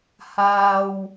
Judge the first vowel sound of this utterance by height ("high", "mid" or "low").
low